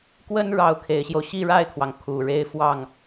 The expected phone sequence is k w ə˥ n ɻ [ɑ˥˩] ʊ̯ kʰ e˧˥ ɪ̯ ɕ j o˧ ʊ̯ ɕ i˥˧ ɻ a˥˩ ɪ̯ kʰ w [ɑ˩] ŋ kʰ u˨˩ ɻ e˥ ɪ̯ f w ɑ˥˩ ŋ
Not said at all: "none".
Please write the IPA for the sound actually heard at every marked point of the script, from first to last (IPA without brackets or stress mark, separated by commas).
ɑ˥˩, ɑ˩